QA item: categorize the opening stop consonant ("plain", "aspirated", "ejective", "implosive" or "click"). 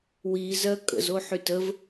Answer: ejective